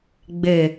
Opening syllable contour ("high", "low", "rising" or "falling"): low